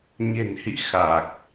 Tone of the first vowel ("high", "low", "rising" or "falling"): low